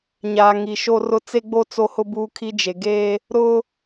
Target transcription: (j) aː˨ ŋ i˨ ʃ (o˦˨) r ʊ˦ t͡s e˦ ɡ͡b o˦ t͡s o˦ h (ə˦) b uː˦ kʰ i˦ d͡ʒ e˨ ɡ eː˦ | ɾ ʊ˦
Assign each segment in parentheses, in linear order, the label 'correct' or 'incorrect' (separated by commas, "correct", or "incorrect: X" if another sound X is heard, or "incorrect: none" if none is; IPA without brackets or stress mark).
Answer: incorrect: ɲ, incorrect: o˦, incorrect: ʊ˦